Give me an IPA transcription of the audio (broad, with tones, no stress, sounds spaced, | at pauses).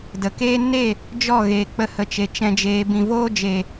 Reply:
d ə˨ k eː˦ n e˦˨ | d͡ʒ ɔ˦˨ ɣ eː˨ k͡p ə˧ h ə˨ t͡ʃ e˨ t͡ʃ ɛ̃˧ d͡ʒ eː˧ b ĩ˨ v oː˦ d͡ʒ eː˨